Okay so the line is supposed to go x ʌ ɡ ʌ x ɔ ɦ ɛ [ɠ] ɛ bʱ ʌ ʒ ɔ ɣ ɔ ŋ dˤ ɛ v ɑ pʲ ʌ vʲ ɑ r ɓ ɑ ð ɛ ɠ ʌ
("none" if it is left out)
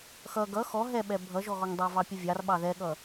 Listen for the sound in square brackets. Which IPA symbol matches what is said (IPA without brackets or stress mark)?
ɓ